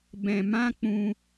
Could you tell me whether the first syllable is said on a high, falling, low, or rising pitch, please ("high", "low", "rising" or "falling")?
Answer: low